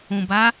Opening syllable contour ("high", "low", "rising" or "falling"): low